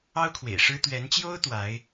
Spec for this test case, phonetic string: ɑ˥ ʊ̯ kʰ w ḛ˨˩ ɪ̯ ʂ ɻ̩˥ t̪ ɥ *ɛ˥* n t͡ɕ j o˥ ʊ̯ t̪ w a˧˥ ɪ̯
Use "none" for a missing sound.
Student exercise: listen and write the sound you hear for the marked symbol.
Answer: ɛ˧˥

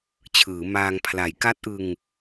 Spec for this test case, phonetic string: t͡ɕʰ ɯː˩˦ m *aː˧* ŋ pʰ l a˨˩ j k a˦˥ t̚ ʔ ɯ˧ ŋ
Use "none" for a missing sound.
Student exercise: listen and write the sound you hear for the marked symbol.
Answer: aː˧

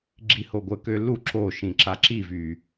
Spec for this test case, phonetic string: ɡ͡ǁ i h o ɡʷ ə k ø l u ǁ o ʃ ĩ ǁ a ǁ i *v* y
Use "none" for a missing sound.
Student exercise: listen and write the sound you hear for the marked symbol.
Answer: v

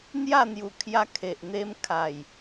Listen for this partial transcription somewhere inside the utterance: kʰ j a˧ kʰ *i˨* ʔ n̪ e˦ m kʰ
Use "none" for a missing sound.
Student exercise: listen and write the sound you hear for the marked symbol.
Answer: e˨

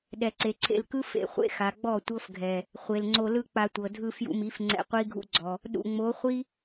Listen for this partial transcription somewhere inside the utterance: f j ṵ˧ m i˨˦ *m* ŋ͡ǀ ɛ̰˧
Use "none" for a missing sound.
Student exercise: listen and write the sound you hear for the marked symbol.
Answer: f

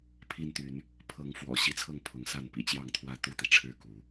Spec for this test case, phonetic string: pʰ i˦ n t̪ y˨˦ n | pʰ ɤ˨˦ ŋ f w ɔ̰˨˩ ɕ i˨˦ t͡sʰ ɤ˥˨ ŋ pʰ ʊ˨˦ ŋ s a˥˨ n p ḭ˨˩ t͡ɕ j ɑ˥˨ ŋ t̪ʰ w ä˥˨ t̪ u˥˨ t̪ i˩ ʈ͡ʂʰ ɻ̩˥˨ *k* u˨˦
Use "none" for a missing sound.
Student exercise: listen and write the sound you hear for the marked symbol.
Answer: k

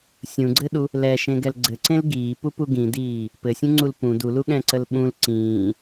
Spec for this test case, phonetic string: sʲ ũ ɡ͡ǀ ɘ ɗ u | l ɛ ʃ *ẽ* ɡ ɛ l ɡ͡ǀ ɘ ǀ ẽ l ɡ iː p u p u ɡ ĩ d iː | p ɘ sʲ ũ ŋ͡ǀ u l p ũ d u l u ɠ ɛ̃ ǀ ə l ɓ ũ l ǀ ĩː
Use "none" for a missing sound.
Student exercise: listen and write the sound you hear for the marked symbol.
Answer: ẽ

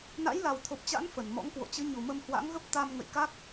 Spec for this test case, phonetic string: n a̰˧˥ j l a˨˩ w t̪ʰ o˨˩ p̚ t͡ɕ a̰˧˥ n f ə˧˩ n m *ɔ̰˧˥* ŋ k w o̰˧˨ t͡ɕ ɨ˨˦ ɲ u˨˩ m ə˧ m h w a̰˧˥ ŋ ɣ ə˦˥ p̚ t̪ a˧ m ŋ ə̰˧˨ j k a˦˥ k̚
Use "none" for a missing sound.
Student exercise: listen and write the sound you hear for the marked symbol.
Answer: ɔ̰˧˥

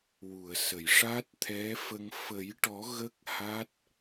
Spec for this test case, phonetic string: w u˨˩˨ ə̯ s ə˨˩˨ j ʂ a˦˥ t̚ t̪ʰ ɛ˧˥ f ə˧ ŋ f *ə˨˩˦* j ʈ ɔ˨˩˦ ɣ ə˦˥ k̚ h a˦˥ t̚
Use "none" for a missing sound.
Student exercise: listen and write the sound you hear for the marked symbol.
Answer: ə˨˩˦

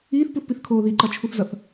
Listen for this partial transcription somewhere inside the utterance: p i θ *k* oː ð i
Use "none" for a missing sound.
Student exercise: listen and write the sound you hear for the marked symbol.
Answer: kʰ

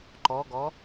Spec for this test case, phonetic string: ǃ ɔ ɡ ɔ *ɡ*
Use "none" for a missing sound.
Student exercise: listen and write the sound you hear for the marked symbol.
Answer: none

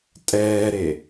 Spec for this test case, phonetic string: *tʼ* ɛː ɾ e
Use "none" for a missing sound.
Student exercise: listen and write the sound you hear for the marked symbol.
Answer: tʼ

